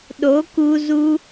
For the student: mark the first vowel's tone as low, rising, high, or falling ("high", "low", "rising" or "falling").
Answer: rising